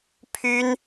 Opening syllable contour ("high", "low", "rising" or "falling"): high